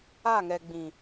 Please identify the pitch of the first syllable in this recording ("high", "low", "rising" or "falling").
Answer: falling